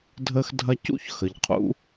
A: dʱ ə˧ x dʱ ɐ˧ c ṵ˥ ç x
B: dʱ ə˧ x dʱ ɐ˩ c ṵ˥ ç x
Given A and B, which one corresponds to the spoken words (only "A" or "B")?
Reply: A